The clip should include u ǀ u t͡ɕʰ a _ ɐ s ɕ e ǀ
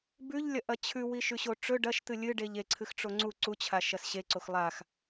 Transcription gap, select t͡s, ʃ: ʃ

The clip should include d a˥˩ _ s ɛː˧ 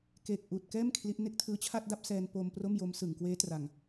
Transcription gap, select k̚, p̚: p̚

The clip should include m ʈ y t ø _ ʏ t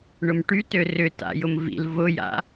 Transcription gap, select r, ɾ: r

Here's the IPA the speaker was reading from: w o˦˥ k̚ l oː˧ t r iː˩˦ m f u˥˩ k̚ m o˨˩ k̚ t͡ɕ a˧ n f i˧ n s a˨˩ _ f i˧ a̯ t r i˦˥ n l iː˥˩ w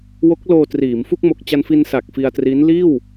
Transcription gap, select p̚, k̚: k̚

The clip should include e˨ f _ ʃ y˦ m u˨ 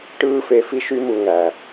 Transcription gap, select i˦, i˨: i˦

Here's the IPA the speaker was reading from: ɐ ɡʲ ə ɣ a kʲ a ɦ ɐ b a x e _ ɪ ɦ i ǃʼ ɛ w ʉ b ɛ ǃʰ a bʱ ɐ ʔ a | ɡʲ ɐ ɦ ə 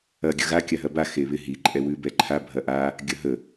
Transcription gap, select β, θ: β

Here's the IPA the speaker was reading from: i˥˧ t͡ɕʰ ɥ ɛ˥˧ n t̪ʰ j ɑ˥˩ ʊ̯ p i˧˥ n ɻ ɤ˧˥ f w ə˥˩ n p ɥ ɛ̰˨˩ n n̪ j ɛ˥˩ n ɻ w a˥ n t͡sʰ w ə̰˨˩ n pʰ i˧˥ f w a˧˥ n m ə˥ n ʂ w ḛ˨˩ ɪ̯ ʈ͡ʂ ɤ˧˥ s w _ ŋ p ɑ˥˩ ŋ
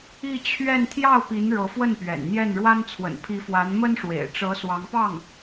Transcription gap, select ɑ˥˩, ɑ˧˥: ɑ˧˥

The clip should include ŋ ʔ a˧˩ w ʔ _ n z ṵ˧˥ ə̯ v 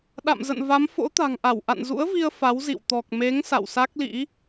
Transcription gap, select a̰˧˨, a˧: a̰˧˨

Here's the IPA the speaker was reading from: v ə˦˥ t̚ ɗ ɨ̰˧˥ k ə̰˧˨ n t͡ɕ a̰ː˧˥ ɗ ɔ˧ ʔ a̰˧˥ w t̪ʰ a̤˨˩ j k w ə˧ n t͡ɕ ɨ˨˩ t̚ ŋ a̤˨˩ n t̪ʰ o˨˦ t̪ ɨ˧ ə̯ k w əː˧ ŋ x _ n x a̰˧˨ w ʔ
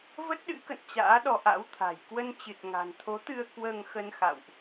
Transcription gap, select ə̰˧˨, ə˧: ə˧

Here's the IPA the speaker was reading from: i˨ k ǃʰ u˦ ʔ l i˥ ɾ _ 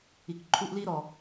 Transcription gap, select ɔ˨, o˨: ɔ˨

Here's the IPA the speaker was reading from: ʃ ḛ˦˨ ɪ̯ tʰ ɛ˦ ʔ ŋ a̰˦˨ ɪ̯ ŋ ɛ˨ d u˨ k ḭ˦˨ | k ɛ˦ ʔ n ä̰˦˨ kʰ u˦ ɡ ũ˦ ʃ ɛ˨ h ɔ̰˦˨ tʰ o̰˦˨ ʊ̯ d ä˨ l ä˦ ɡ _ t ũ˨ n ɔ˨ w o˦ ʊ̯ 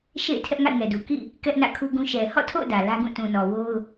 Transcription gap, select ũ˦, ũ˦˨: ũ˦˨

